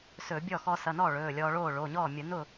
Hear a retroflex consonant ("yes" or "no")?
yes